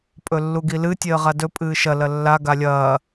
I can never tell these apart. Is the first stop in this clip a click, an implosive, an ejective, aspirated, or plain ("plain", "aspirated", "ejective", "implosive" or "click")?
ejective